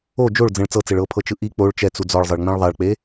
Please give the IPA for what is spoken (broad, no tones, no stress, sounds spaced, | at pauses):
o d͡ʒ o ɭ d͡z ẽ ɭ t͡s ɤ t͡s e ɭ ɤ pʰ ɤ t͡ʃ ɯ ʔ i k͡p o ɭ t͡ʃ ɛ t͡s u d͡z ɔ ɭ zˤ ɤ ɭ ŋ͡m ẽ ɭ ðˤ a ɭ k͡p e